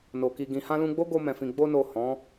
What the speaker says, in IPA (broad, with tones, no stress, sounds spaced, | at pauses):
n o˨ k i˨ ɡ ĩ˨ h ã˧ l ũ˧ ɡ͡b o˦ ɡ o˧ m ɛ̃˨ f ĩ˨ ɡ͡b o˧ n o˨ h ɔ̃˨˦